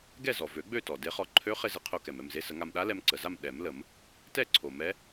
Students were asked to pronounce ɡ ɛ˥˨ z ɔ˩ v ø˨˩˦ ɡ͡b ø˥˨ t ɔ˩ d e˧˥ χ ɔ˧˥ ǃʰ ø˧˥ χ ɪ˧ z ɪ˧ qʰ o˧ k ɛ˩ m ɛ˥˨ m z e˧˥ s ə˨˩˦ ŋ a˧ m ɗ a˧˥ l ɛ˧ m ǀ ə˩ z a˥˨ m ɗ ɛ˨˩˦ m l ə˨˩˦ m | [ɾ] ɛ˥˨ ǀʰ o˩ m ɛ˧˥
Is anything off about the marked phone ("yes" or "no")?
yes